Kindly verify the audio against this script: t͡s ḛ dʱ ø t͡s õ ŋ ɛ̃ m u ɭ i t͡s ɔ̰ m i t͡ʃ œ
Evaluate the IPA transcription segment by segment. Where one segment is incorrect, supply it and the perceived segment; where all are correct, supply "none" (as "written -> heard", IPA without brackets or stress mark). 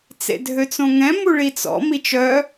none